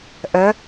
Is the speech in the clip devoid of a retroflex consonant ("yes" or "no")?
yes